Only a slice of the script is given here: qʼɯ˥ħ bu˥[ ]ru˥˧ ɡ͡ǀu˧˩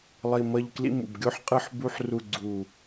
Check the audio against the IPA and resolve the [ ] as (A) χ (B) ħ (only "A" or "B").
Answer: B